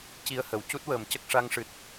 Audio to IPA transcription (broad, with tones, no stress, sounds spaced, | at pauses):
c i˧ ə̯ h ə˨˩˨ w c u˦˥ t̚ w əː˨˩˨ m c ə˦˥ k̚ ʂ a˧ ŋ ʂ ɨ˨˩ t̚